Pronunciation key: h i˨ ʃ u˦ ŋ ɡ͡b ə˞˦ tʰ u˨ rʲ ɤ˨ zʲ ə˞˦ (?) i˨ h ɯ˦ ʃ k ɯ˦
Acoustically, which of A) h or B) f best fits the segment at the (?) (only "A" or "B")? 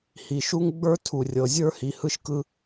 A